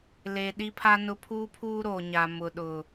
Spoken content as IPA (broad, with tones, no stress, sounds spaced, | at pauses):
l e˨ ɗ i˦ pʰ a˦ n ʊ˦ pʰ uː˦ pʰ uː˦ ɾ oː˨ ɲ a˨ m ʊ˨ ɗ ʊ˨